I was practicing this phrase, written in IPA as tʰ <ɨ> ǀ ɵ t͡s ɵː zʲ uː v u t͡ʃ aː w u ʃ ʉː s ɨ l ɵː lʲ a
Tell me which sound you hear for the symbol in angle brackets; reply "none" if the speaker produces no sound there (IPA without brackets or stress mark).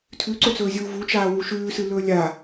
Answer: ʉ